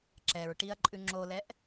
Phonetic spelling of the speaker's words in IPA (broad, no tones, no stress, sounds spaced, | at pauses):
ǁ ɛ ɹ ʈ i ɐ̯ ǃʼ ʉ ŋ͡ǁ o l ɛ ʔ